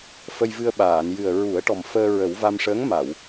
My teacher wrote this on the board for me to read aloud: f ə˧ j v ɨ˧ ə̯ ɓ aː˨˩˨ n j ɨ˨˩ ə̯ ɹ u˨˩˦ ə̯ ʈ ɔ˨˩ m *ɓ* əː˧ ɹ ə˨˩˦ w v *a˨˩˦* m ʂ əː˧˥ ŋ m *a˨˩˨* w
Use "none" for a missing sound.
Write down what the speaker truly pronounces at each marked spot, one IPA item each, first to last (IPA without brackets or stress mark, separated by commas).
f, a˧, a˨˩˨